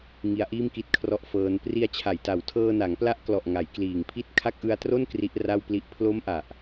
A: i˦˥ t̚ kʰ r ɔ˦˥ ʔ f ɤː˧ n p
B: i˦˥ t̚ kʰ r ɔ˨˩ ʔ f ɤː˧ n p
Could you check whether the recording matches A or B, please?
A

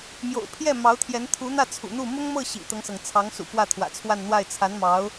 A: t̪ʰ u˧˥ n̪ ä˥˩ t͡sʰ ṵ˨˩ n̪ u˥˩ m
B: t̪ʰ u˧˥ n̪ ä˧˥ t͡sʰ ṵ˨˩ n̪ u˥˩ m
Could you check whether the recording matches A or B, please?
A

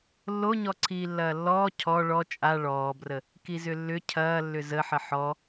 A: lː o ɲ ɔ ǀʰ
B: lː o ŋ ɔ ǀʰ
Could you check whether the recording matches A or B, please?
A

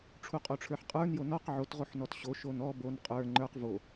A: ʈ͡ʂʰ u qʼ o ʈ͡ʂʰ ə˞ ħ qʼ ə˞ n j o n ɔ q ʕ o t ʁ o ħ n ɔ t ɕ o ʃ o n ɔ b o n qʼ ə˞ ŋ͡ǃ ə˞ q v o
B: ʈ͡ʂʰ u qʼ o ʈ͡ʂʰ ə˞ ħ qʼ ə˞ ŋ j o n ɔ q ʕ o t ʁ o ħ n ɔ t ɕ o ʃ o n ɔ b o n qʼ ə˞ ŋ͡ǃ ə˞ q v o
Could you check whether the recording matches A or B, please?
A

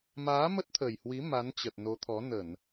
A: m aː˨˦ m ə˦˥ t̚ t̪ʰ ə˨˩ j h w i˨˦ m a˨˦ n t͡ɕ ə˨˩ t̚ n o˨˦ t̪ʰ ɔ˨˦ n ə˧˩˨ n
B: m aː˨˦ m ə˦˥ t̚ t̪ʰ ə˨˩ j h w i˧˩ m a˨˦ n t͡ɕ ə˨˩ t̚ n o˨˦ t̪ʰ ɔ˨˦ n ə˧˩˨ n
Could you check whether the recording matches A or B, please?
A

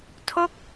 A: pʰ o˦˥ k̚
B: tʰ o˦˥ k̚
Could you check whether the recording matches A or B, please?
B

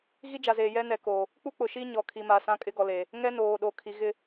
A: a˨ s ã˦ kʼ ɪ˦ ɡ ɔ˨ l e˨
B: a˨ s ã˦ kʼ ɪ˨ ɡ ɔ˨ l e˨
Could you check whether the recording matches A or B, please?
A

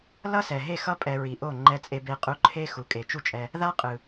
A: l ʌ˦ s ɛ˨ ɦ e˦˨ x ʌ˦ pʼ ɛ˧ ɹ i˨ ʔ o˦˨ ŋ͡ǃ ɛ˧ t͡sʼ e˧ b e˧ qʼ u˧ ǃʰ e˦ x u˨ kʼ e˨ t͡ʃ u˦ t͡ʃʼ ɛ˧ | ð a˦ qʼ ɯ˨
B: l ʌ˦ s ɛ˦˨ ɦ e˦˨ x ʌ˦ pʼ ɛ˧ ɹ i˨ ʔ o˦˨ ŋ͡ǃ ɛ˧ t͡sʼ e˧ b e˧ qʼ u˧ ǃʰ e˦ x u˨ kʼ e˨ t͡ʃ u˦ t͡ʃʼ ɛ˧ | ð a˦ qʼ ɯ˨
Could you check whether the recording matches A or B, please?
A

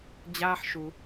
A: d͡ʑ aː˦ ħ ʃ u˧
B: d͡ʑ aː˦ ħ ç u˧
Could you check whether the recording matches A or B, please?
A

